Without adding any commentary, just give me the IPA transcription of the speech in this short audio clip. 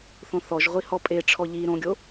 θ õ θ ɔ ʒ ʁʷ i h ɔ pʼ e ʈ͡ʂʰ ɔ ʎ i ɾ õ ɡʲ o

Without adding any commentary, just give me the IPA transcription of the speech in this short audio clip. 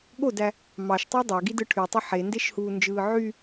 ɠ o d æ | m ɑ ʃ tˤ o dˤ æ ɡ i d ɯ ʈʰ y tˤ i ħ e n d e ʃ h uː n d͡ʒ ɯː ʕ y

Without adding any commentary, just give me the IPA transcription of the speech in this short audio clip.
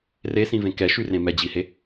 r e s ĩ v ẽ k ɛ ʃ y r ẽ m ɛ d͡ʑ i h e

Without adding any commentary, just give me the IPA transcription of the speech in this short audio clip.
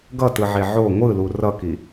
ɡ ʌ t ɯ ʕ e ʕ o ŋʷ ɯ l u r ʌ k i

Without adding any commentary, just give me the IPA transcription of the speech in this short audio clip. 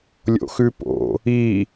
lʲ o̰ x ʉ p o̰ | i

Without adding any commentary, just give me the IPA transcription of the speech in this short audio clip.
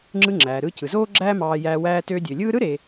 ŋ͡ǁ ɯ˧ ŋ͡ǁ æː˩ ɾ ɯː˧ c ɯ˩ z oː˥ ɡ͡ǁ æː˥ m ɑː˧ j æː˧ w æː˧ t øː˧ dʲ ø˩ lʲ ɯː˥ ɾ ɯ˥ ɾ e˩

